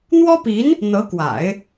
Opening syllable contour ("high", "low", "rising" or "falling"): high